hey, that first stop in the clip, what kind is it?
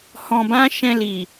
plain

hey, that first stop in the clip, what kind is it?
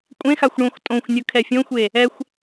ejective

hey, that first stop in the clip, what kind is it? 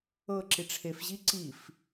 click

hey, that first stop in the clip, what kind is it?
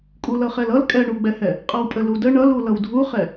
ejective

